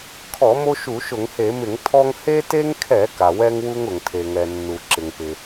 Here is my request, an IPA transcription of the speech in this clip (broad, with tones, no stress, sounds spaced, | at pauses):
kʰ ɔ˧˩˧ m o˦ ʃ u˧˩˧ ʃ ʊ˧˩˧ ŋ h e˧˩˧ m ɪ˧˩˧ ŋ tʰ ɔ˦ ŋ h e˦ t e˦ ŋ kʰ ɛ˧˩˧ k a˩ w ɛ˦ ŋ w u˦ ŋ ʊ˩ ŋ tʰ e˩ ŋ ɛ˩ nː u˩ ǁ ɪ˩ ŋ p ɪ˩